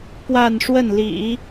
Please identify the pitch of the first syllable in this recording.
falling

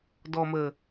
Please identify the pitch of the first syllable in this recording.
low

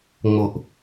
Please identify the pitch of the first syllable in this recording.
low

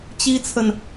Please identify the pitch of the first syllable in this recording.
high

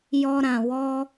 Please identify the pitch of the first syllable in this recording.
high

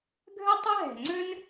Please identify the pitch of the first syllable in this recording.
high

